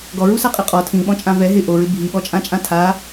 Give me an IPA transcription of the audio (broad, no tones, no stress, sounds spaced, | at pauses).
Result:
ɡ ɔ ɹ u s a qʼ i qʼ ɔ tʰ ĩ ɓ ɔ̃ t͡ʃʼ ã v ɛ ɦ ɪ ʔ o ɹ ɪ bʱ i ɓ ɔ t͡ʃʼ ã t͡ʃʼ ã tʰ a